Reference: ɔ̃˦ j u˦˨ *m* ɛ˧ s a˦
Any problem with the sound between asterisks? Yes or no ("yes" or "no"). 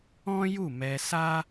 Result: no